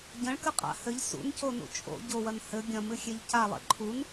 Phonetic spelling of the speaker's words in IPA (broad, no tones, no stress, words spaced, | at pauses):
ɟɐ̃ɭkɨqʼa̰ hɘʎ sṵnconṵ t͡ʃʼo̰ ɟowɐn hɘ ɡʲɐ̃mɨxʲeʎ calˠḛ ǃʰun